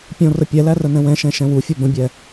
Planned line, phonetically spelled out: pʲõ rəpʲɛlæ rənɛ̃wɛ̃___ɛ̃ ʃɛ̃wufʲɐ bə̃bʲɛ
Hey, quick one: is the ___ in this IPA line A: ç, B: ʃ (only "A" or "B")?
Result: B